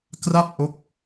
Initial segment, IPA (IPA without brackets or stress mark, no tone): k